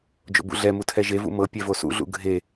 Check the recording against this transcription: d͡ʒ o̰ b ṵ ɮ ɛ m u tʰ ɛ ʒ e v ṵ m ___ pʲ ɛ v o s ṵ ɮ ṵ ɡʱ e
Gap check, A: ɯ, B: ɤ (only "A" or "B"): B